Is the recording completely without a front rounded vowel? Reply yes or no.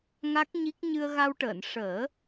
yes